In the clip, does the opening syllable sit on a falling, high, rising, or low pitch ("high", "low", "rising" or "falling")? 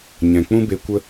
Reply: low